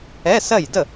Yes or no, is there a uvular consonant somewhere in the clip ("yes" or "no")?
no